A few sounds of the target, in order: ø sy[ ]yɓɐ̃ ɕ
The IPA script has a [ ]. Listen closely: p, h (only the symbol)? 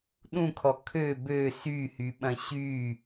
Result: h